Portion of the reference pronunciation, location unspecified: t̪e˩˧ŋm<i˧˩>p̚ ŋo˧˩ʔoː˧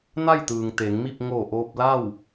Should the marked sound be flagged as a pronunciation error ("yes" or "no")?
yes